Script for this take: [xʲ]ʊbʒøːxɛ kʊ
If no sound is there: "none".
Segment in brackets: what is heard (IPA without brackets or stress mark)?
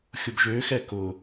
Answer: xʲ